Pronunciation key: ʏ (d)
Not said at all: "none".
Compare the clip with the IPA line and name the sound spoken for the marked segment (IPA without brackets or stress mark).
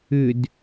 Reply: d